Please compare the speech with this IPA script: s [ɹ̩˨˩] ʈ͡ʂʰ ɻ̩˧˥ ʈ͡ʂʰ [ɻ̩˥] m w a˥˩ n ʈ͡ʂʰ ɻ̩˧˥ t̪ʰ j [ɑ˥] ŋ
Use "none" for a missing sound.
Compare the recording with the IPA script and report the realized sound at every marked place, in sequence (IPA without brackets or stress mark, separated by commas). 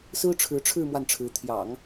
ɹ̩˥, ɻ̩˥˧, ɑ̰˨˩˦